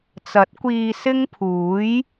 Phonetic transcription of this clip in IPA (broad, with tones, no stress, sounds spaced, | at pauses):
t͡s ɐ˨˥ t̚ kʷ iː˧ s ɪ˥ ŋ pʰ uː˨˥ j